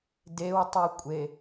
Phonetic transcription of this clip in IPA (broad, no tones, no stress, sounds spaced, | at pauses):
d e w tˤ u kʷʼ e